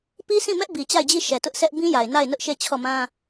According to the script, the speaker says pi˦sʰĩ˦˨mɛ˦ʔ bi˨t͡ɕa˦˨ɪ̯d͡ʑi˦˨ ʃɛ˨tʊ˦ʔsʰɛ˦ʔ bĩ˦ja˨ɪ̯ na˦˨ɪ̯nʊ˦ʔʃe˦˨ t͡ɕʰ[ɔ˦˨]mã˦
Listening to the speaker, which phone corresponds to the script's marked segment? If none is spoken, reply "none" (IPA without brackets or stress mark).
ɔ˦˨